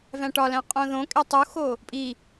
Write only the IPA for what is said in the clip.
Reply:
væ̃ʈɒlæ̃ qʼõðõkʼe tˤuxo | pʼi

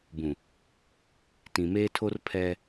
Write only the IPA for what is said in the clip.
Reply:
bũ˨ | tĩ˨meː˦tʰo˦r pʰɛ˦

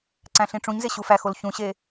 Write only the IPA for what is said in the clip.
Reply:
ǀæ̃ɬĩʈ͡ʂũɲze ɕufæxol çũɕe

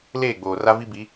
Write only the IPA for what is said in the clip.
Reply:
leː˦˨ɡ͡boː˨ra˦ vi˦bi˨˦

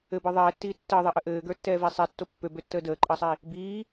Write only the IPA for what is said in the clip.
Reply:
ɘbə˞ ðˤɛːtːiː tːəːðˤeʔə ʔɘːɡə˞tːɛːve sˤetːo pːøbøtːəː dəːǃʼəːsˤi | biː

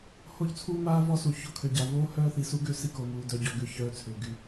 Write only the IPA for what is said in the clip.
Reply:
ho˦˨ʎt͡sʰuː˦maː˦ vɔ˦su˨ ço˦kʰø˨ɟa˨ voː˦hœː˦θi˨ su˦ɡø˦ si˦ko˨muː˨ dœ˨ɟɔ˨ ɡʏ˦çœː˦ t͡sʰʏː˨ ɡy˨

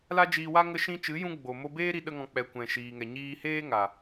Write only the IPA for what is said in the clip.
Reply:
la˦d͡ʒiː˧wa˦ ŋə˧ʃĩ˧t͡ʃɨ˨˦jũ˧ ɡ͡bo˨mo˧beː˦ ɾi˦ɗə˦ŋɔ̃˧ k͡pɛ˨kʷɛ̃˨ ʃiː˨ŋɛ˨ ɲiː˧heː˦ ŋa˨

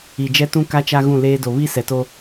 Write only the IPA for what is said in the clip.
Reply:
i˨d͡ʒɛ˦tũ˦ ka˦t͡ʃa˦ ɣũ˦˨leː˦do˨ βi˦ sɛ˨to˦

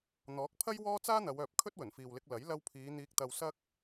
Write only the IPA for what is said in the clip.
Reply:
n̪ɔː˨˥k̚pʰɐ˥j wɔː˥ t͡saː˥n̪ɐ˨˧wœː˨p̚ kʰɵ˥t̚wɵ˨˩nfiː˨wlɪ˧k̚ lɐ˨˥j lɐ˧wpʰiː˨˧ n̪iː˧k̚t̪ɐ˧w sɐ˥k̚

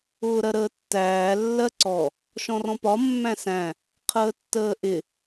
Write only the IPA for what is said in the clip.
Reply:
ʊːɾɜɾəːtːæː lːɜǀɔ | ʃɔ̃rɔ̃pɒ mːæ̃sæ̃ | qʰəːtːəːʔɪ

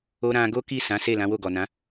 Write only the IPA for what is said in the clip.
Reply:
o˧ ɾã˧ ɡo˦ki˦˨ sã˨˦se˦˨ lã˨˦wo˦˨ɡɔ˨nã˨˦

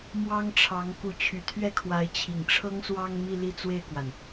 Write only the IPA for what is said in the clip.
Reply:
mwɑ˥ŋʈ͡ʂʰɑ˧˥ŋ ku˧˥t͡ɕʰy˨˩t̪ʰɥɛ˥˩kʰwa˧˥ɪ̯ t͡ɕʰi˨˩ŋʈ͡ʂʰɤ˥ŋswɑ˥ŋ mi˥˧li˥˧t͡swe˥˩ɪ̯kwa˩n

